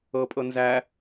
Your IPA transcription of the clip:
ɤ pʼ ɤ n z æ

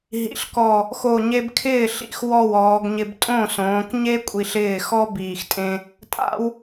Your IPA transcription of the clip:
ɦ ḭ˩˧ ɬ k ɔ˨˩ | x o˨˩ ɲ e˧ b kʰ ɪː˥˩ ɬ ḭ˨˩ x w ɔ˥˩ w ɔː˩˧ ɡ ɲ ɪ˧ b tʼ õ˥˩ s õː˩˧ k ɲ e˥ kʷʼ i˧ ɬ ɪː˥˩ x ɔ˥ b iː˨˩ x tʼ ẽ˧ | tʼ a̰˥ w

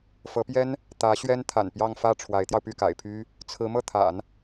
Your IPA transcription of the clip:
f ɤ˧˥ p j ɛ˥ n | t̪ ä˧˥ ɕ ɥ ɛ˥ n t̪ʰ a̰˨˩ n p j ɑ˥˧ ŋ f ä˥˩ ʈ͡ʂʰ w a˧˥ ɪ̯ t̪ j ɑ˧ ʊ̯ p y˥˩ k a̰˨˩ ɪ̯ pʰ y˥ | t͡sʰ ɹ̩˧˥ m ɤ˥˩ t̪ʰ a̰˨˩˦ n

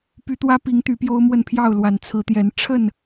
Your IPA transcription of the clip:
p y˨˦ t̪ w ä˦ p i˨˦ ŋ t̪ y˨˦ p j o˦ ʊ̯ m w ə˥˨ n pʰ j ɑ˥˨ ʊ̯ l w a˨˩ n t͡sʰ ɹ̩˨˦ t̪ j ɛ˨˦ n ʈ͡ʂʰ ə˥˨ n

